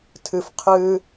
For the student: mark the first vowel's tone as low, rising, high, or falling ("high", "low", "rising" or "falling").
low